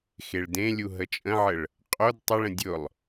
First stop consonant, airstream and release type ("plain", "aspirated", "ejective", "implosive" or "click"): plain